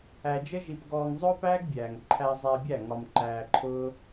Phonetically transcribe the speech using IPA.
æ˧d͡ʒə˦ʒi˧pɡɔː˧ŋ zˤʊː˦pæː˦ɡbʲæː˨ŋ ǃʰæ˧zˤɛː˧bʲæ˦˨ ŋɒ˧mǃæː˧ǃʰʊː˦

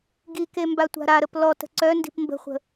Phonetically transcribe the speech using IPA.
ɡike mbatʷa̤ɾaɾəp lɔtə̤ ǀœ ndi̤pmbə̤χʷə̤

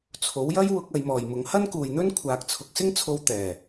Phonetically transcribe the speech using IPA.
t͡sʰo˨˥wjɐ˥j wʊ˧k̚ ɐ˨˧jmɔː˨jmʊ˨˥ŋ hɐ˥nkuː˨jn̪ɵ˥n kʷʰaː˨k̚t͡sʰʊ˨k̚sɪ˥ŋt͡sʰo˧w t̪ɛː˨˩

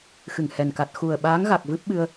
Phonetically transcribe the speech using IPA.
xɨ˧˩ŋhɛ˨˩n ka˨˩t̚xu˨˩ə̯ɓaː˨˦ŋ ɣa˨˩k̚vɨ˦˥p̚ɓɨ˧ə̯

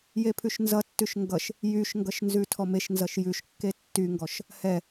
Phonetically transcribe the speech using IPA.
jepʰʉʃnzʌtːʉʃ ŋɡʌʃ | jyʃŋɡʌʃ nzʉtʰɔmeʃnzʌʃ jʉʃkːe tːyŋɡɔʃ | hɛ

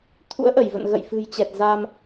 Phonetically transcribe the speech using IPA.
t̪ʰṵ˧˥ə̯ʔə˧˩jvə̰˧˨n ɣə̰˧˨jfɨ̤˨˩jt͡ɕɛ˨˩t̚ za˧m

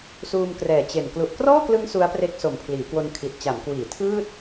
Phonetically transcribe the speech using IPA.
suː˧mkrɛː˨˩t͡ɕe˨˩n klu˨˩ʔkrɔː˥˩klɯ˦˥ŋ su˦˥a̯pre˦˥k̚ so˨˩mpʰliː˩˦kwo˧n kʰi˨˩t̚t͡ɕa˩˦m kwiː˩˦tʰɯː˥˩t̚

